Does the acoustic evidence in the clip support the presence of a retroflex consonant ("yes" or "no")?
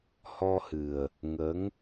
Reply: no